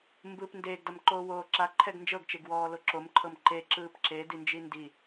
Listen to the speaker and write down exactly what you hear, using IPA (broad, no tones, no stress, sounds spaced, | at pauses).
m b ɯ p n d eː ɡ d a m ǃ oː w oː ǁ a ǃʰ ɛ ɡ n d͡ʒ ɤ ɡ t͡ʃ e ɡ w ɔː l o ǁ o m ǃʰ ɤ m ǃ e ǁ ɯː p ǁ e d i n d͡ʒ i n d i